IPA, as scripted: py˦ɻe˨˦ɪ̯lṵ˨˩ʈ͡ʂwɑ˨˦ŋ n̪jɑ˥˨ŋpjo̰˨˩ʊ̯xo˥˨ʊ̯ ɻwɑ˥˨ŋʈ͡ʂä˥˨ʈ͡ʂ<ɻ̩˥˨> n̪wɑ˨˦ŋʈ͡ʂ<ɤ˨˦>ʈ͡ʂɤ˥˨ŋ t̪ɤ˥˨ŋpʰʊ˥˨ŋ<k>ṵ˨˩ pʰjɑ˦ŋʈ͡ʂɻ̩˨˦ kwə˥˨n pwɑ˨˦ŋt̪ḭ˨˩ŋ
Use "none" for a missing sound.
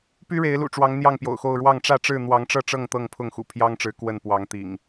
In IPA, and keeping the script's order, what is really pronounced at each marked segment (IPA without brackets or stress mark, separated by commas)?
ɻ̩˥˨, ɤ˥˨, x